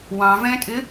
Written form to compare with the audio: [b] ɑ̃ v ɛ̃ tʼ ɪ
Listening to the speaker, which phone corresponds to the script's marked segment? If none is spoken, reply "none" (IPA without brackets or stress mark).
w